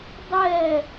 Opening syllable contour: falling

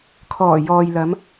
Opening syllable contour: low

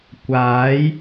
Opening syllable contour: rising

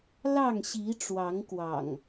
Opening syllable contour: falling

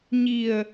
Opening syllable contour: low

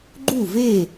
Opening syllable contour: falling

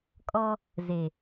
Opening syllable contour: high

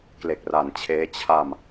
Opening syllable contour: low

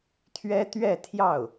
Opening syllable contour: high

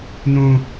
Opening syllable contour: high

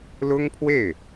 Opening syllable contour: high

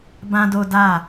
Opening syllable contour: high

